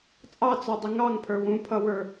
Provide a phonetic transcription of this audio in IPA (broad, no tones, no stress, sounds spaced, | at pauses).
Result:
t͡sʼ ɑ t͡s ɔ dˤ ɪ ŋ ɑ ŋ pʰ ə˞ w ũ pʰ ʌ w ə˞